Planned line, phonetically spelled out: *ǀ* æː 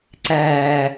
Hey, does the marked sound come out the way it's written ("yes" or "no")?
yes